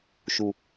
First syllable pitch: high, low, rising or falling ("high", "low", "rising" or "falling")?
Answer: low